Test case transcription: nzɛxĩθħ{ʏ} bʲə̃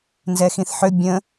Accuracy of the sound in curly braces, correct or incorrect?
correct